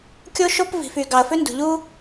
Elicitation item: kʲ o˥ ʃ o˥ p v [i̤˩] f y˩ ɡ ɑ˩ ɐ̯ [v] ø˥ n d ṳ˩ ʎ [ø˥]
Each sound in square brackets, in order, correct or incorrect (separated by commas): correct, incorrect, incorrect